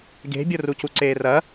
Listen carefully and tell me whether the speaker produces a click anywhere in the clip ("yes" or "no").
yes